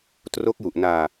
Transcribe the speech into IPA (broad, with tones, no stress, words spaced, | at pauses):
tro˦˥k̚ju˨˩ʔnaː˧